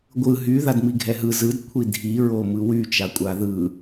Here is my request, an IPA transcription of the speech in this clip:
ɡʷɯ ɦy ðadmiɡʱɛɦɯ zɯd kʷʰidʱiɹomɯ wyt͡ʃakʷʼa ðɯ

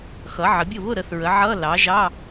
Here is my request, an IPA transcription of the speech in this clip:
xʌ˩˥ʕə˩˥bʲʊ˥˩ βʊ˥˩ ɾə˩˥θɹə˩˥ʕʌ˧˥˧ lɑ˩˥ ʒɑ˧˥˧

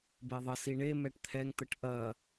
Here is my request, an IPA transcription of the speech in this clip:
beðˤə siɳe mɛʈt̪ʰɛŋ t̪əʈʔɐ

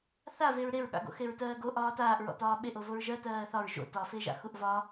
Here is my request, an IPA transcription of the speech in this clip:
θaveɹ ɾeɹɠa̰ɡo̰ xeɹtɜːɡo ʔɒːtaːʔɹɔ̰ tɒːɓeʔovoɹ ʒɜ tɜːθɒɹ ʒo̰ tɒfeʒa̰ xuʔvɒ

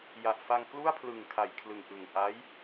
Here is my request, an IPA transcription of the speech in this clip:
ja˨˩ʔfa˧ŋ klu˥˩a̯pʰlɯ˨˩ŋ kʰa˨˩jkʰlɯ˨˩ŋʔɯ˨˩ŋ ʔa˦˥j

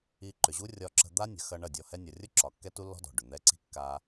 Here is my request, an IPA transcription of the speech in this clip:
i˧ǃʏ˨ʑu˦ rʲɒ˧ǁə̤˧d̪a˦ nʲə̤˨xɐ˧ ɳɐ˦˨dʲɔ˧ hɛ˦ nʲɒ˨rʲʊ˦ ǁɒ˨kːɛ˦ tu˦lːɔ̤˦dɔ̤˨ ɖʏ˨n̪ɛ˦ ǀi̤˦kːa˧

